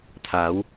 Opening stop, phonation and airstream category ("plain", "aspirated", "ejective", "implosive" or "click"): aspirated